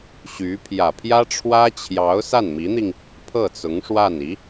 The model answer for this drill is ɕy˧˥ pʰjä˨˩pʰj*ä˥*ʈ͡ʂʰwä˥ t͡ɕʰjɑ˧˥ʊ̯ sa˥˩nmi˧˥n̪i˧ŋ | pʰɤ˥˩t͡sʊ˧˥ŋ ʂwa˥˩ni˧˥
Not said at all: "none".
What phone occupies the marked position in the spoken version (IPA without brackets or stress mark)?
ä˥